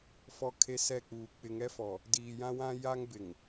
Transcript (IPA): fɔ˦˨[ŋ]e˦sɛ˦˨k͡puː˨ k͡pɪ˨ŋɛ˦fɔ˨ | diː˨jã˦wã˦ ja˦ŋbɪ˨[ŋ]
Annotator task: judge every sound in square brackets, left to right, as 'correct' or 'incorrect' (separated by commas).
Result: incorrect, correct